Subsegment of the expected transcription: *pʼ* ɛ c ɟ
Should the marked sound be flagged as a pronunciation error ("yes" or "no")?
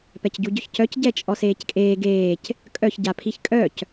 yes